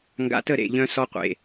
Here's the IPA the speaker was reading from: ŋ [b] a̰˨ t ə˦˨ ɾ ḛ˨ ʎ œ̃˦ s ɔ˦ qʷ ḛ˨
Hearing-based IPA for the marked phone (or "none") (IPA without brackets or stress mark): ɡ